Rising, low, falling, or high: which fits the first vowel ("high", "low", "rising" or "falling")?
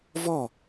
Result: falling